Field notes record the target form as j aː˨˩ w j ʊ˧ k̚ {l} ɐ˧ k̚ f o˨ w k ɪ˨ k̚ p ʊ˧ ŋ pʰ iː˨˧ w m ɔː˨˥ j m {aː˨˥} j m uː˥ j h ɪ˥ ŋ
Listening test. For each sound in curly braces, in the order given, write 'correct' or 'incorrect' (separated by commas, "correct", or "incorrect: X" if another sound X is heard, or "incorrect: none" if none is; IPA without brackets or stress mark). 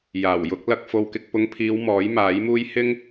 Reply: correct, correct